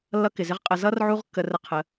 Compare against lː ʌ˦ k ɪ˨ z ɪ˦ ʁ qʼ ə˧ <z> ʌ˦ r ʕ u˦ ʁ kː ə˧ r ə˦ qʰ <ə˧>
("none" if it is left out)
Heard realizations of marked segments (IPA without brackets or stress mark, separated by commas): z, ə˨˦